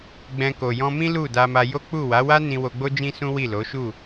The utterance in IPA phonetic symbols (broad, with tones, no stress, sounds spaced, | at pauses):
ɡ͡b ɛ̃˧ k o˨ j ɔ̃˧ m ĩ˦ l u˦˨ d a˧ m a˧ j o˦ k͡p u˦˨ w a˨˦ w a˦ n ĩ˧ w o˧ ɡ͡b o˦ d͡ʒ ĩ˦ s ũ˦ w i˦˨ l o˨˦ ʃ u˦˨